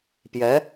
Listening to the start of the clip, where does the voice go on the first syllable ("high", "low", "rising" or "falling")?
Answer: rising